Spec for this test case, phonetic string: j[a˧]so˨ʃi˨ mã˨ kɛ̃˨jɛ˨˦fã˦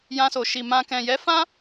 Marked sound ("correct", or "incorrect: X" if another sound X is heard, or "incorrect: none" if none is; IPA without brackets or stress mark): incorrect: ã˧